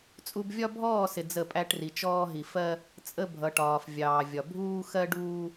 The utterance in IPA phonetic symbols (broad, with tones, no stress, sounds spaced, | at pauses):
t͡sʼ u˦ b vʲ ɒ˦ bʱ ɔː˦˨ s ɪ˨ d͡z ə˦˨ pʼ æ˦ ʈ r i˨ t͡ʃ ɔː˦ ɦ i˨ f ɜ˦ | t͡sʼ ə˦ bʱ ʌ˨ ʈ ɒː˨ f vʲ ɑː˨ vʲ ɒ˨ bʱ uː˦ x ɜ˦ ɖ uː˦